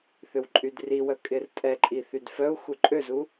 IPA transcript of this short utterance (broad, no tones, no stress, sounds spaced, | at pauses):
θ ʏ w ǃʼ y d r i w œ kʼ ɪ r tʼ ɛ ǃʼ i θ y d f œ u̯ x u ǃʼ ø z u